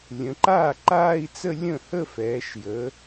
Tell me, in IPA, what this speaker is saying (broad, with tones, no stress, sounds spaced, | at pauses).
lʲ ə̃˩˧ ǃ aː˥˩ ǃ aː˥˧ i̯ t͡s ə˥˧ lʲ ə̃˥˩ h ə˥˧ f ɛː˩˧ ʃ j ə˩˧